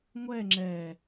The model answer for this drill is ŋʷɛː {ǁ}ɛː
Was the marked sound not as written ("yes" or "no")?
yes